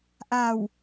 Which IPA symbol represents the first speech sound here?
ʔ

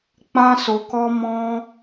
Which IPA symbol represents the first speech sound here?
k͡p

